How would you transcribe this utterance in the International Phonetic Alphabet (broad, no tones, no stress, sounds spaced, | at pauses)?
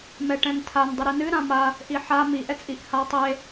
m ɛ ʈ ɛ̃ n tʰ a n dˤ ɨ ɾ i n ɨ ɾ ã m a | ʔ i ħ a m i ʔ ɛ t͡sʼ i ʔ h a tˤ e